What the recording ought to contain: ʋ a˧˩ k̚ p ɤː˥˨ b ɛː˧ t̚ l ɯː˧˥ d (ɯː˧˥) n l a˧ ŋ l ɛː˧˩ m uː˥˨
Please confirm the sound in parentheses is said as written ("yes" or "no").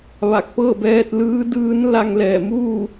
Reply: yes